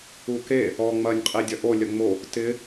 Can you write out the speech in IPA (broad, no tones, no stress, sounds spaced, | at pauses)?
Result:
u k e | ɔ ŋ͡m ɐ nʲ qʼ i dʲ ɐ ʔ o lʲ ɐ ŋ͡m o | t ɪ